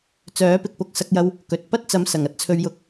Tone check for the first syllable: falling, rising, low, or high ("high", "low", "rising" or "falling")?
rising